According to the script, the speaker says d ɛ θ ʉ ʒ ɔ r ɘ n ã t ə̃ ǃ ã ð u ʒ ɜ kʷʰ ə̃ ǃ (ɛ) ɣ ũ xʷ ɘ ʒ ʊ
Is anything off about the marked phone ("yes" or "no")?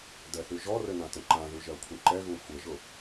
no